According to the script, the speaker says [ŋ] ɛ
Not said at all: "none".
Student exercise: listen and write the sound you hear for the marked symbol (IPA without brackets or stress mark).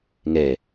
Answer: ŋ